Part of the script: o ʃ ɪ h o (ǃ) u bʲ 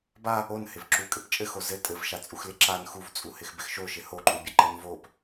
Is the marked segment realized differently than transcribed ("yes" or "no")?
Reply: no